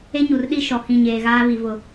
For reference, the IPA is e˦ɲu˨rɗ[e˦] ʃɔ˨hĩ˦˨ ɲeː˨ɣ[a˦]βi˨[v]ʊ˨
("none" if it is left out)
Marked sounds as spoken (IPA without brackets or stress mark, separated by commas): i˦, aː˦, v